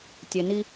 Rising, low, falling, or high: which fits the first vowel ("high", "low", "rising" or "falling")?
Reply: low